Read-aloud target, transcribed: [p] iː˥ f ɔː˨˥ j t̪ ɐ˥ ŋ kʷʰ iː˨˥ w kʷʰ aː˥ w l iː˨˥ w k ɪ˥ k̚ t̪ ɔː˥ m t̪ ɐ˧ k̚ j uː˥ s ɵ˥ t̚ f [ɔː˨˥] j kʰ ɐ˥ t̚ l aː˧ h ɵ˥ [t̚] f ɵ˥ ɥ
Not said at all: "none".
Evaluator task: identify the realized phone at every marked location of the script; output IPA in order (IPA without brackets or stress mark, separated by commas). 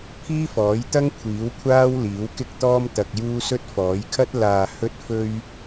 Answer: pʰ, ɔː˨˥, t̚